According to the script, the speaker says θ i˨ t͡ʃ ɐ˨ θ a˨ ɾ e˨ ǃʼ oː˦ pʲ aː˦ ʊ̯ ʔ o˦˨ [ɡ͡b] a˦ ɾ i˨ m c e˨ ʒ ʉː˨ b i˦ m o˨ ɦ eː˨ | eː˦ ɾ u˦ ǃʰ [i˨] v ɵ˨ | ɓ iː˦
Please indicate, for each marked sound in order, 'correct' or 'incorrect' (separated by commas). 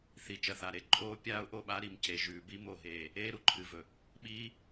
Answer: incorrect, incorrect